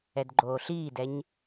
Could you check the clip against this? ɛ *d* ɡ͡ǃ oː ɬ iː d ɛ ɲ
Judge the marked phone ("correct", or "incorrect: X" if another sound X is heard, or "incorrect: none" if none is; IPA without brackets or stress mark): correct